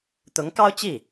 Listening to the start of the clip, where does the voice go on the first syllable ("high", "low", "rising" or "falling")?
rising